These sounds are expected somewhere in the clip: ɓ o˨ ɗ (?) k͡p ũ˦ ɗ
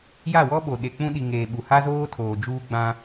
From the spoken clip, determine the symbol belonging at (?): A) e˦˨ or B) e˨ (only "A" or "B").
B